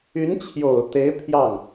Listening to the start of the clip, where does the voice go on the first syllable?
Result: rising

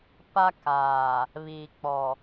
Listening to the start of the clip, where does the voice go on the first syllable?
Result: high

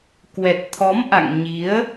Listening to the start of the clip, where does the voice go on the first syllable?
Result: low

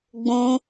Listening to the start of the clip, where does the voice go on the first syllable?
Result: high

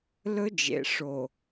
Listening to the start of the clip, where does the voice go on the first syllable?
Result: high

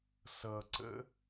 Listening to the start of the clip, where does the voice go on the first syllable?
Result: low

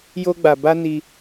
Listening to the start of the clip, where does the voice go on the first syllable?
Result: high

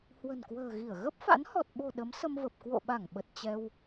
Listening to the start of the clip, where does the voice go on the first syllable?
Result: low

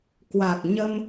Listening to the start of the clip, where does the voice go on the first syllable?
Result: low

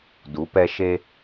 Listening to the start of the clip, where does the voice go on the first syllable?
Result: rising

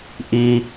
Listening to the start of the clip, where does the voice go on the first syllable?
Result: high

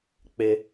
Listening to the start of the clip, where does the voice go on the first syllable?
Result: high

